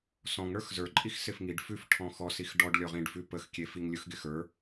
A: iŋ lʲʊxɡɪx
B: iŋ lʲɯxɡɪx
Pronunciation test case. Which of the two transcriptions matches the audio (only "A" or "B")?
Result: B